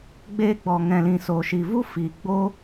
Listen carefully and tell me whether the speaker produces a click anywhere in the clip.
no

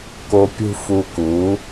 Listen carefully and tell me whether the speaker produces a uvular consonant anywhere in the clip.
no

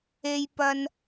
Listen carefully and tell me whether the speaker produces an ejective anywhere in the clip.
no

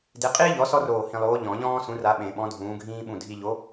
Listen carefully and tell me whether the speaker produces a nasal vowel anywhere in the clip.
yes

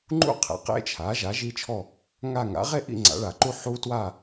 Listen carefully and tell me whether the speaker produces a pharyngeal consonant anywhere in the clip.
yes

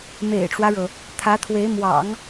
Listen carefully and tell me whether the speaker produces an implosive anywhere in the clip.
no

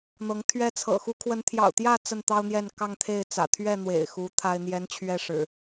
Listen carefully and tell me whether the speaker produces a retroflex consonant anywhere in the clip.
yes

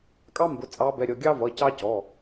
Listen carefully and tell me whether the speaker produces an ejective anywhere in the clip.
yes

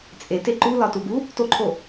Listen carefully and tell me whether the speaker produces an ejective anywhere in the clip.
yes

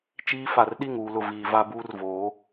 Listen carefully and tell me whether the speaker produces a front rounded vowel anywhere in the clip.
no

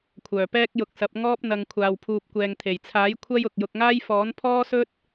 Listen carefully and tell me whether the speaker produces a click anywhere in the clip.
no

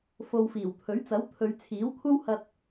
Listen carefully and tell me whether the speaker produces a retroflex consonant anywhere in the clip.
no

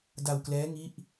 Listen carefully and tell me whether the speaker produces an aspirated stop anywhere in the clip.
no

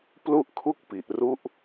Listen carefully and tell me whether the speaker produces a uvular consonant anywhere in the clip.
no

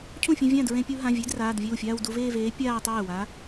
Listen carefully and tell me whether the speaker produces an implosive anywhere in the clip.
no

